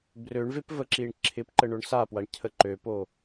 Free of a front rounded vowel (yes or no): no